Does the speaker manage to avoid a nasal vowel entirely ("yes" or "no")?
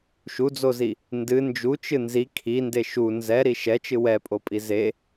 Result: yes